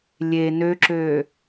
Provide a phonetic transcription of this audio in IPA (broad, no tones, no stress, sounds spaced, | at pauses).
lʲ e n ø ǁ øː